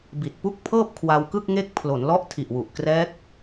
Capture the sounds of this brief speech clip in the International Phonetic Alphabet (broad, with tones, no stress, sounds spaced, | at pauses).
b i˨˩ t̚ p u˥˩ k̚ pʰ ɤː˥˩ p̚ kʰ w a˧ w k ɯ˥˩ k̚ ŋ e˦˥ k̚ pʰ l o˩˦ n l ɔ˦˥ ʔ tʰ i˨˩ ʔ w u˨˩ ʔ k r ɛː˦˥ k̚